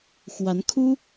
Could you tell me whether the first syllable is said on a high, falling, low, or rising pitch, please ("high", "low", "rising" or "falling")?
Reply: rising